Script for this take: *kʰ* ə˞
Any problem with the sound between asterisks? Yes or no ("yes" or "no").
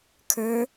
no